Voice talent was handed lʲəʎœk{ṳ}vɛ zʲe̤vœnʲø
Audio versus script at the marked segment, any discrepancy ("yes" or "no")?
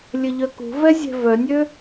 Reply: no